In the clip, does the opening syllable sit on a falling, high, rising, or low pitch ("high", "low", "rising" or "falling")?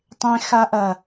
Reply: high